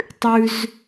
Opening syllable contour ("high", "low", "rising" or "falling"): low